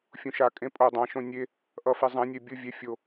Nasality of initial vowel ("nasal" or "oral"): nasal